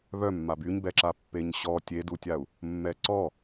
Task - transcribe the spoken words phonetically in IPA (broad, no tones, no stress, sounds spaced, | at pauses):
β œ mː a b y ɲ b ɛ ǁ a pː e ɲ ɕ ɔ tʲ e d u tʲ a u̯ | mː ɛ ǀ ɔ